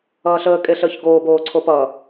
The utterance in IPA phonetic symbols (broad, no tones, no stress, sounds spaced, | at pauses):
ʌː ɬ əː kʼ e ɬ əː ç ɡ oː b oː ǀʰ o p ʌ